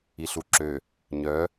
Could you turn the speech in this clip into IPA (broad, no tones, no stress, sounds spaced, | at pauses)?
i ɬ u ǁ ø | ɲ œ